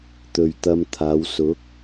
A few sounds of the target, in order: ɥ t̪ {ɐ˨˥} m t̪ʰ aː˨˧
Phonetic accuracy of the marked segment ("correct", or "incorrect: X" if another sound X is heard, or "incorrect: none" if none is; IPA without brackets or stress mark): incorrect: ɐ˧